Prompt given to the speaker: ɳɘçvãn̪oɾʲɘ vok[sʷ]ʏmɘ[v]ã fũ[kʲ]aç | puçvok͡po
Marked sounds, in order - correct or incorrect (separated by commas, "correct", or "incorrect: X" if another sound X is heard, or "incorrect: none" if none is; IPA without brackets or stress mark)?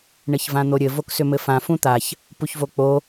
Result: incorrect: s, incorrect: f, incorrect: t̪